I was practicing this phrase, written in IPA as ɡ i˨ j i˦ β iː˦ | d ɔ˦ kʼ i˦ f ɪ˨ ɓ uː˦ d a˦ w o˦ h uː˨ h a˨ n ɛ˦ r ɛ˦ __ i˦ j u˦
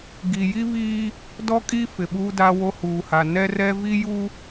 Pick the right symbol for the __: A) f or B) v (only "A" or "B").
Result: B